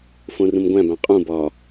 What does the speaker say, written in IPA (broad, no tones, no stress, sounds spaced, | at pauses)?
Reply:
f õ r ũ m ɡʷ æ̃ b æ̃ qʼ ũ b ɒ